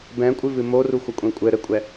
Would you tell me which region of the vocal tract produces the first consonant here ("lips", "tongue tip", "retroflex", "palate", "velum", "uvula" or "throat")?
lips